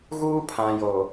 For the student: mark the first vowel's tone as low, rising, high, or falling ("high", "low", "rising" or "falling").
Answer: high